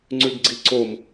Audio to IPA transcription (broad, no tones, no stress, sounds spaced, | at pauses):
ŋ͡ǀ ʉ ɡ ɡ͡ǀ i ǀ o m